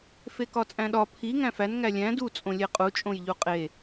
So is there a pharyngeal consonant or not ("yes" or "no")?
no